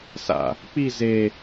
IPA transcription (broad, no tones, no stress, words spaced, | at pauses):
sa̰ | k͡pi ze